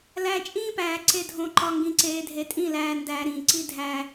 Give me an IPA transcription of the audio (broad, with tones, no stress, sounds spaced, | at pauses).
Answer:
l æ˨ t͡ʃʼ ĩː˦ p æː˨ ǀ e˨ dʱ õ˨ ǃ ɒ˨ ŋ ɡ ĩ˨ ǀ eː˨ dʱ e˨ tʼ ĩ˦˨ l æː˨ n d æː˨ ɾ ĩː˨ ǀ i˦ dʱ æ˦